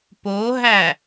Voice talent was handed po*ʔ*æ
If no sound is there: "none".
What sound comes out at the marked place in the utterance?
ɦ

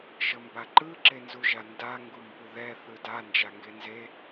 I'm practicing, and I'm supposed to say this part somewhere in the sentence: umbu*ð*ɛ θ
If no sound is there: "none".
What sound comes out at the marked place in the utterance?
ð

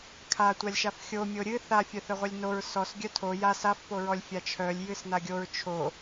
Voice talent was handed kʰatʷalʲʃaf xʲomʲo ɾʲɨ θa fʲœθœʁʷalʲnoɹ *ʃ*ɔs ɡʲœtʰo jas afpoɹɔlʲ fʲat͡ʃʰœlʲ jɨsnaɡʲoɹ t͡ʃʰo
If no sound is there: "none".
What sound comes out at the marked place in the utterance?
s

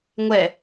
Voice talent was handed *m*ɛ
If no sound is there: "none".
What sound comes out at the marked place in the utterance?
ŋʷ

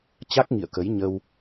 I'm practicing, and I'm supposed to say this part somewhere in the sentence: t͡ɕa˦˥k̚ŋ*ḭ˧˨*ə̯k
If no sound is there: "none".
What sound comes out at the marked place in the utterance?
ḭ˧˨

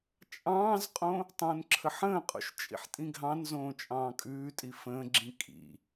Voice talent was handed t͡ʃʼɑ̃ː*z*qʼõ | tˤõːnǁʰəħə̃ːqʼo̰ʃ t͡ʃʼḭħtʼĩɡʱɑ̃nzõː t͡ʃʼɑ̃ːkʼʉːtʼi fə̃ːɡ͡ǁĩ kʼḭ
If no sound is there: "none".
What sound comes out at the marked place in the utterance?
z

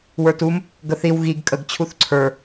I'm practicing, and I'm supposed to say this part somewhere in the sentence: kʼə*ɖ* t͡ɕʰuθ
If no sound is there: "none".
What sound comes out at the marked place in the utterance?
ɡ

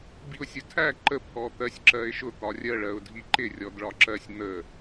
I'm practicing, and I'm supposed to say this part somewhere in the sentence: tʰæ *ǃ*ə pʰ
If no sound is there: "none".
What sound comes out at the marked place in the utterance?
ǃ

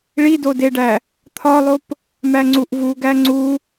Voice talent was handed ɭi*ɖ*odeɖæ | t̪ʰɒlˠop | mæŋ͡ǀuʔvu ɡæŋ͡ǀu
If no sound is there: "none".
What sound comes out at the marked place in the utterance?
d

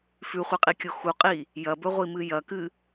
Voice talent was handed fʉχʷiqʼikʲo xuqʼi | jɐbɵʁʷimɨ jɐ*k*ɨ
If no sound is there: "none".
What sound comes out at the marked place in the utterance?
k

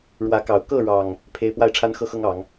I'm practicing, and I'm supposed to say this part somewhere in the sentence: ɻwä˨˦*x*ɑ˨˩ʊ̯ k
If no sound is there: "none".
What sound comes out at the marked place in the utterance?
k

